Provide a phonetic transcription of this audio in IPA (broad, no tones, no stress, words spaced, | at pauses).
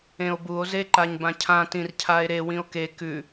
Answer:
ẽo̯buo̯ zeǃaɲbãcʰã tĩrcʰae̯ɾe wĩo̯ke kʉ